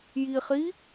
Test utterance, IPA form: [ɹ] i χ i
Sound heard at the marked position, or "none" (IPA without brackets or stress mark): j